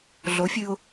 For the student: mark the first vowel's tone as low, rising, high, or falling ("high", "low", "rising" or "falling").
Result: rising